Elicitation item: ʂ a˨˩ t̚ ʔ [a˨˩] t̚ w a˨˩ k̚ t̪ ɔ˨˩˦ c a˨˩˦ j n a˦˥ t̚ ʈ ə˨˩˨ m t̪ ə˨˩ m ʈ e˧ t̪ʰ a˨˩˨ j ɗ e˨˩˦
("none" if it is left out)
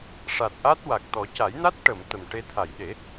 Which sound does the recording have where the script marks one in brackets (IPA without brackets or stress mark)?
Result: a˦˥